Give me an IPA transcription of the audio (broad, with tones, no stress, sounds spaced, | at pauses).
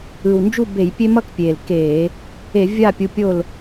ɯ˨˩ w n d͡ʒ u˦˨ b e˧˩˧ j pʲ e˦ m ʌ˦ k pʲ eː˨˩ l k eː˧˩˧ | e˧˩˧ vʲ aː˦˨ pʲ u˨˦ pʲ o˦˨ l